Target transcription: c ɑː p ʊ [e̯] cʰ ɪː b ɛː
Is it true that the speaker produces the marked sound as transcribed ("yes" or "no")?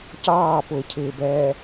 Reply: yes